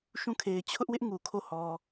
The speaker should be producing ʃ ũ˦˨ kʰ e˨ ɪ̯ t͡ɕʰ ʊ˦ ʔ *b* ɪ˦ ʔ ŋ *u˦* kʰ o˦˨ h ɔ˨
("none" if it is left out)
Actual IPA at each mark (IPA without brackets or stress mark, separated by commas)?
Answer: w, u˨